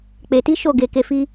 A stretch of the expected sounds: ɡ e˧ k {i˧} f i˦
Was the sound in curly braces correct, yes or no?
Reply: no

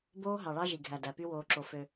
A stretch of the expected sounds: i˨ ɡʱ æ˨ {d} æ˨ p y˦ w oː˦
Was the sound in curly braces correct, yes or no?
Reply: yes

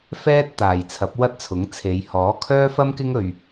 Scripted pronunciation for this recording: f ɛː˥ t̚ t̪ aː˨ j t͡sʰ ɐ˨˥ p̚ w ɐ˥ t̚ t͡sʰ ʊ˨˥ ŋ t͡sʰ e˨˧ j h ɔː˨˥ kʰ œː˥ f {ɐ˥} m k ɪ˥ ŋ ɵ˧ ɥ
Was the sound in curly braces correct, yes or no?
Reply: yes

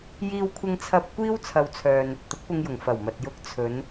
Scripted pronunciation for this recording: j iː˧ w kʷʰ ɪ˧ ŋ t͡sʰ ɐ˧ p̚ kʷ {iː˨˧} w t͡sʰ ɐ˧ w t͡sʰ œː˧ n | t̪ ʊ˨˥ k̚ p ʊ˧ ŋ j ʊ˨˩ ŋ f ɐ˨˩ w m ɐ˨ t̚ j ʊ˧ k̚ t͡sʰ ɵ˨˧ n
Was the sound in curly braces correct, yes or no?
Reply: no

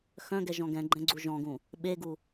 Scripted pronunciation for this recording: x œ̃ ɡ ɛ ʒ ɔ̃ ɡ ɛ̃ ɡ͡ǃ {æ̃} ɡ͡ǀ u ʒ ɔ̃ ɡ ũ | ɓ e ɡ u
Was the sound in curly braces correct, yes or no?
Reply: no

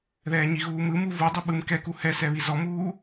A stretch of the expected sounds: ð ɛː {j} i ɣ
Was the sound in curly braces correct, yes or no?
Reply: no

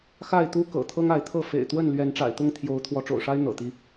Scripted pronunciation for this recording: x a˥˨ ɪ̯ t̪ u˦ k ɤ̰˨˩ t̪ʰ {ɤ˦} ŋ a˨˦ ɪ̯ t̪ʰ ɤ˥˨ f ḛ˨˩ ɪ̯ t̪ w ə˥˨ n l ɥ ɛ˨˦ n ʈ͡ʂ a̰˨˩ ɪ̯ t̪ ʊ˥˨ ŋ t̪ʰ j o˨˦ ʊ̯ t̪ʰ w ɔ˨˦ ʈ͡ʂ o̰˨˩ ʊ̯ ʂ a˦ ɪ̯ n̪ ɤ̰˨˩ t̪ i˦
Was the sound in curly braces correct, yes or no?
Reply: yes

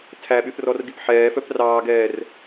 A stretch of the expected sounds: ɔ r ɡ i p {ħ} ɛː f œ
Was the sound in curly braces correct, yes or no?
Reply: yes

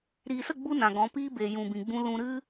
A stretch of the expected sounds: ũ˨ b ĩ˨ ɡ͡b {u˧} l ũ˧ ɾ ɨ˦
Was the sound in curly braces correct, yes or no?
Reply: no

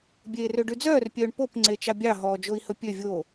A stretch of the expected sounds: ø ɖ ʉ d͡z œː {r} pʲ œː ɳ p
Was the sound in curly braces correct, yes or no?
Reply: yes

